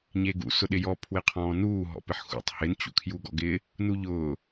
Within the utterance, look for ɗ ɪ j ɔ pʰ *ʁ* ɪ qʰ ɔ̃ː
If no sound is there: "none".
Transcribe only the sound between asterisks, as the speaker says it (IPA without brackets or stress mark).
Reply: w